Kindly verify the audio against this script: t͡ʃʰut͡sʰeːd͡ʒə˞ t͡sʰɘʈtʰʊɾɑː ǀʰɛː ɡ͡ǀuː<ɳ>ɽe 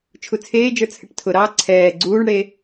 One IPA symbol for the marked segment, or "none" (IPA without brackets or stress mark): ɳ